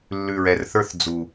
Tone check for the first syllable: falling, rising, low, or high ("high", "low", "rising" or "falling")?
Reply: low